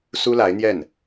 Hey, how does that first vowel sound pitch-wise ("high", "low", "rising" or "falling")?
high